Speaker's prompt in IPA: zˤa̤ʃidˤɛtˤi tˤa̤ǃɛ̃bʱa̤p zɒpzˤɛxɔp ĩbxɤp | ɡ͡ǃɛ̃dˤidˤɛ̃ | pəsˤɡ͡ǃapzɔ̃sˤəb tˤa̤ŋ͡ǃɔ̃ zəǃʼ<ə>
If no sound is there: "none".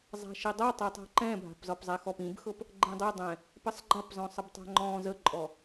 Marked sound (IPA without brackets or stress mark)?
ɔ